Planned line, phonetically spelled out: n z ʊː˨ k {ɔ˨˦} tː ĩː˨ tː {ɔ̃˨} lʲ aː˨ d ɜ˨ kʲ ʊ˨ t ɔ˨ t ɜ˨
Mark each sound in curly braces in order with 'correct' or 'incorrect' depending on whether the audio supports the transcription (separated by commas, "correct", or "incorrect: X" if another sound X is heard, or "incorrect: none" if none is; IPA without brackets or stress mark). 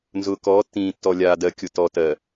incorrect: ɔː˨˦, incorrect: ɔ˨